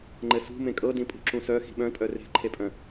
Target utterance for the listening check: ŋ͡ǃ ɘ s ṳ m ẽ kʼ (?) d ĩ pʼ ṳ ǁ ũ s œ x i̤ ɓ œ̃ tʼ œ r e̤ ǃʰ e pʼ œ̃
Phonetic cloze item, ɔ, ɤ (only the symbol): ɤ